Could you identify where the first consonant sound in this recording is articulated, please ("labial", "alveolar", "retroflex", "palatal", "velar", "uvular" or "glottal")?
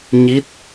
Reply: palatal